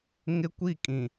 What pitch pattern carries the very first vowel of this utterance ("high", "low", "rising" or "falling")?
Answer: high